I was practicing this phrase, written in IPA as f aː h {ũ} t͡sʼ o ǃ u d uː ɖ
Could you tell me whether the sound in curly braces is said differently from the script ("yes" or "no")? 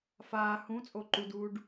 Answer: no